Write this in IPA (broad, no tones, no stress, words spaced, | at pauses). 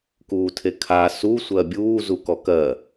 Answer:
kuːtʰekʰa su sʷɜbʲuː zukɔkɜ